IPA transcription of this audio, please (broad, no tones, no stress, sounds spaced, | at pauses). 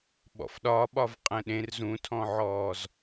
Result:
ɓ ɔ̰ f ɗ ɒ ɓ ɒ v qʼ ɛ̃ ɗ ẽ r z ũ tʰ ɔ̃ ʕ ɔː z